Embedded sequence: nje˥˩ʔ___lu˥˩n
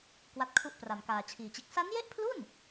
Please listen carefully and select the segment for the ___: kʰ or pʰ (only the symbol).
pʰ